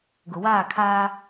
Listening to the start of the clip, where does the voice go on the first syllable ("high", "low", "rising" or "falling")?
low